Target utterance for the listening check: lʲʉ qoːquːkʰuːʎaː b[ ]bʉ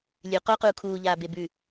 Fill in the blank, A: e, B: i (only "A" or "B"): A